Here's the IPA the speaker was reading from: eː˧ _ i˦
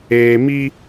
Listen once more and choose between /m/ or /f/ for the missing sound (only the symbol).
m